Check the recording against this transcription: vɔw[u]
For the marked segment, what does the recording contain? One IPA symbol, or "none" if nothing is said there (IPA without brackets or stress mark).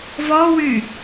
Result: y